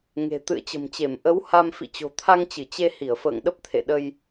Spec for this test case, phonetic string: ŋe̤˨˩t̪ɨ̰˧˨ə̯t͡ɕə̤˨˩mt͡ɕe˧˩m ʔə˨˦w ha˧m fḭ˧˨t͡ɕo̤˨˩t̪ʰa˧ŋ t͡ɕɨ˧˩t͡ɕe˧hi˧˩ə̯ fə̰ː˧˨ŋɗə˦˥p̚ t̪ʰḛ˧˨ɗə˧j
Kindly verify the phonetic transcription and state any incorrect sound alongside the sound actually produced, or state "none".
none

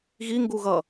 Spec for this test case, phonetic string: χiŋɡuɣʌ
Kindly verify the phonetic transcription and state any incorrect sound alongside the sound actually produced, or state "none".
χ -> ɣ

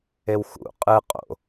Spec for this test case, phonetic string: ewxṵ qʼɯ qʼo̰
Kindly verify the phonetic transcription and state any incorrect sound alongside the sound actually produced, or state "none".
none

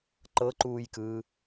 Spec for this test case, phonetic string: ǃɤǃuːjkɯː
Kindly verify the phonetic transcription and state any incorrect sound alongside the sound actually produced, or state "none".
none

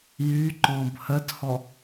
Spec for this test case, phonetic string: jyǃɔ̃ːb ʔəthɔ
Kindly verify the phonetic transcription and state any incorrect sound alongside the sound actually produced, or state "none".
ʔ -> h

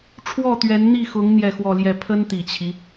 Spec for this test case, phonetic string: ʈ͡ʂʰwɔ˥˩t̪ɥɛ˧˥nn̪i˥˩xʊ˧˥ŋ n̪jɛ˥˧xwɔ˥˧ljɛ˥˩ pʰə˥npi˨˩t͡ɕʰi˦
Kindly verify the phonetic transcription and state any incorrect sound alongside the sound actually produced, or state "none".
p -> t̪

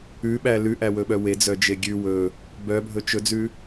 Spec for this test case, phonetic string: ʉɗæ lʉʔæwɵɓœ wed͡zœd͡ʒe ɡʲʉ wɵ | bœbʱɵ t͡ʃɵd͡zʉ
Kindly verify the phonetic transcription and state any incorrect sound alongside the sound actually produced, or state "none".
ɗ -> ɓ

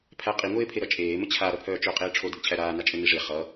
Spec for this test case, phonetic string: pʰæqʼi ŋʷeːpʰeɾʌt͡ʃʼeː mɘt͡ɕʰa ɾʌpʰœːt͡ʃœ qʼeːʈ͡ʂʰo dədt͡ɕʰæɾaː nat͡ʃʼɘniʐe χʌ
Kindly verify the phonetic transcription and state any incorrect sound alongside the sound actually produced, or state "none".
none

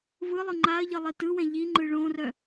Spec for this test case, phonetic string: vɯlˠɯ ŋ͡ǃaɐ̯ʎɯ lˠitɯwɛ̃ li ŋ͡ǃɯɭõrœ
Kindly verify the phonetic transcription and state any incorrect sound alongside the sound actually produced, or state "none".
l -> ʎ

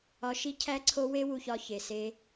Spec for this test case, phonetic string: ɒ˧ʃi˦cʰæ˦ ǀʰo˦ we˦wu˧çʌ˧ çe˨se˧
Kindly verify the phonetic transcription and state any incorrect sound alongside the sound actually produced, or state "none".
ʌ˧ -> ɒ˧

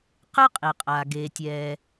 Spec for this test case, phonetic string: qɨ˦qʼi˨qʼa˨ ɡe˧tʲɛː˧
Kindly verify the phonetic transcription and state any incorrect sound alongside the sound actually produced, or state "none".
none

